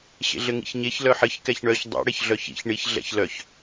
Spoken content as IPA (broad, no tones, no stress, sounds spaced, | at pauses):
ɕ ḛ ɮ ɘ ŋ ḭ ç ɲ e ç l œ ħ ɘ ç k ɛ ç ɳ œ ç dˤ ḭ ɽ e ç ɮ œ ç ḭ ç ɳ i ç ɮ ɛ̰ ç l œ ç